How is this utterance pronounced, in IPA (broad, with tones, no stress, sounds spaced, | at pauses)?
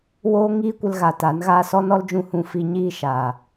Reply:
w oː˦ ŋ iː˦ kʷ ə˧ l ɣ a˨ t a˨˦ n ɣ aː˦ s ɔ˦ n ɔ˦ l d͡ʒ ũ˧ h ũ˧ f i˧ ɲ iː˧ ʃ aː˨